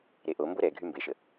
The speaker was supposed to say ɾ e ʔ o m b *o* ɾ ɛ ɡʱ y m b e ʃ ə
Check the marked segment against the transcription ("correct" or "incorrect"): correct